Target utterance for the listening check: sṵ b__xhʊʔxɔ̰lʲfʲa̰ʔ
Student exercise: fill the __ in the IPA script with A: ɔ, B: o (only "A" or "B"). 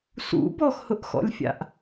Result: A